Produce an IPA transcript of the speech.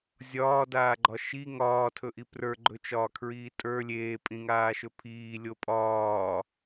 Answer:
zʲɒːdaːɡ͡ǃɒ ʃi ŋɒːtʰɵʔi prə˞ɡ͡ǃɵt͡ʃɒːkʰɹiː tʼə˞ lʲeːpʼĩŋaːʃɵ pʰiːlʲo pʼɒː

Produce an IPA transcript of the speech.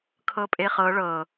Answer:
kʰɤpʼeχɤ ɭɤ

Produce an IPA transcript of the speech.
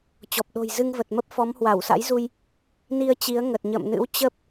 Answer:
t͡ɕɔ˨˩p̚ɗo̤˨˩j zɨ˧ŋvə˨˩t̚mə˦˥p̚fɔ˨˦m hwa˧˩wsa̰˧˥jzu˧j | ni˧ə̯t͡ɕi˨˦ə̯ ŋə˨˩t̚ɲə̰ː˧˨mnɨ̰˧˥w t͡ɕə˦˥p̚

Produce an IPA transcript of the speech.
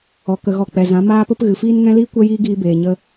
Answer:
ɔ˨kə˨ɣɔ˨ k͡pɛ˨zã˨˦ maː˧pə˧p ɣɨ˨fiː˦n ŋɛ̃˦liː˦ kʷɛ˦jiː˦ɡiː˧ beː˨ɲə˧

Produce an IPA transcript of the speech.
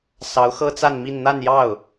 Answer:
sɑ˧˥ʊ̯xɤ˥t͡sa˥˧nmi˥˧n n̪a˥˧njɑ˥˩ʊ̯

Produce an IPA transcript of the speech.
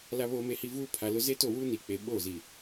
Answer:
la˨βoː˨me˨hi˨ vuː˦pʰa˨lʊ˦ ze˦to˦˨wuː˦ ni˨k͡pe˨ɓoː˦˨ zi˨

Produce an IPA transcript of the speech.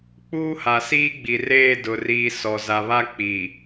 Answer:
k͡puː˦ha˨siː˦ ɡ͡bi˨reː˦˨ dʊ˨ riː˨ sɔ˨ za˨βa˦ k͡pi˨

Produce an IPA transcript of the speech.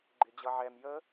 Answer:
ɡ͡ǃɪd͡ʑʌʕɛm jə

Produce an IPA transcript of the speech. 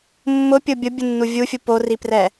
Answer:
mːʊpʲʊ bʲʊbʲunːu vʲufʲu poriprɛ

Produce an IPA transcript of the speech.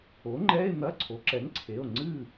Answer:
o˩˥ŋ͡ǃɛ˧˥˧e̯n̪ɐ˧˥˧ ǀʰo˩˥ǁɛ˩˥ŋǀʰe˩˧˩o̯ ŋ͡ǀɨ˥˨

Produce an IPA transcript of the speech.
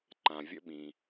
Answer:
ǃã˩vʲə̰˧ɓĩ˩

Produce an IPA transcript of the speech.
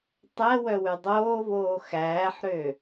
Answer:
tˤɛ wœwʉdˤoːvoː xæːħɾø

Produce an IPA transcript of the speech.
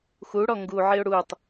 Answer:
xuɽɔ ŋɡuʕiʊ̯ ɽutˤ

